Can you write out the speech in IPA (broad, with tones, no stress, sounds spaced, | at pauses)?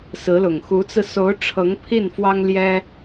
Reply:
s ɹ̩˧˥ l ʊ˨˩ ŋ x u˧˥ t͡s ɹ̩˧ s o˧˥ ʊ̯ ʈ͡ʂʰ ɤ˧˥ ŋ pʰ i˥˩ n f w ɑ˥ ŋ l j ɛ˥